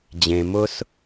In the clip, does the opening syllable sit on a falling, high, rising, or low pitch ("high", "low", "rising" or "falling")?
low